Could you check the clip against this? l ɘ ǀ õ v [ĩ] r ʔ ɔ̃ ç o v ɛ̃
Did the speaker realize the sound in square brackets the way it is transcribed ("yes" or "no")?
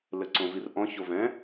no